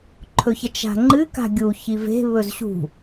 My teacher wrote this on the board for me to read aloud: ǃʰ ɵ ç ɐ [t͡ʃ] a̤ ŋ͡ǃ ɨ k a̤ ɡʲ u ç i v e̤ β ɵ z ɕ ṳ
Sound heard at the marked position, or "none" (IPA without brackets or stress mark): t͡ʃ